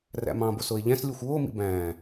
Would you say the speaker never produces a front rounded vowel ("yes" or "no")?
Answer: yes